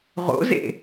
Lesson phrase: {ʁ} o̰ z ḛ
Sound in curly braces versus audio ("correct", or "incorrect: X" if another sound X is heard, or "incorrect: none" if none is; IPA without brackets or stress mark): correct